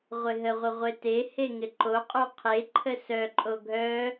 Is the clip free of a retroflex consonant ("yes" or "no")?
yes